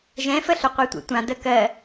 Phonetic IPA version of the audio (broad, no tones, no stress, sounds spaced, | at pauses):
ʒ ɛ̃ f ə ɬ ʏ qʷ ɛ tʷ ḛ tʷ ã d ə k ɜ